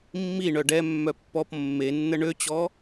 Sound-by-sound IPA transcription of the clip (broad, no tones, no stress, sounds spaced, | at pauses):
mː i ɳ œ ɖ ɛ mː œ pː ɔ p mː e nː ə ɳ ø t͡ɕ ɔ